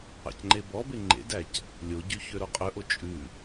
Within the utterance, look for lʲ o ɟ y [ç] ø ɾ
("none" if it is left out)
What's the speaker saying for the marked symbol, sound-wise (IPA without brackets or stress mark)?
ç